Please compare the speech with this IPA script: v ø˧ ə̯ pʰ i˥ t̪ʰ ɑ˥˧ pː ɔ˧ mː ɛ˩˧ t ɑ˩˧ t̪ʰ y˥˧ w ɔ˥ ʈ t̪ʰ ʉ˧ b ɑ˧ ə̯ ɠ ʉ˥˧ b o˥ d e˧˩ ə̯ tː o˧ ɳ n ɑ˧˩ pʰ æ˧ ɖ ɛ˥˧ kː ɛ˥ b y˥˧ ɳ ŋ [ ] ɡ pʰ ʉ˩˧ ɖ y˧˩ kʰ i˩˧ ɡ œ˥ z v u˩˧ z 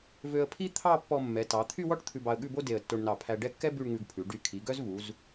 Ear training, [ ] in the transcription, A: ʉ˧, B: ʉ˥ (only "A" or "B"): A